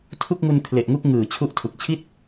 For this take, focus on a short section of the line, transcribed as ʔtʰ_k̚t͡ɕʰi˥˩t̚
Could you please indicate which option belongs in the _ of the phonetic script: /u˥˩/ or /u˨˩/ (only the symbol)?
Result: u˨˩